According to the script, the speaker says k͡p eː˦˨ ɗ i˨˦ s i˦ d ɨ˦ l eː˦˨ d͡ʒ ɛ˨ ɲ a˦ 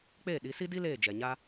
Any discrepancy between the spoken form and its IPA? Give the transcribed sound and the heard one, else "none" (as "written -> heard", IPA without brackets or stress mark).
ɨ˦ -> i˦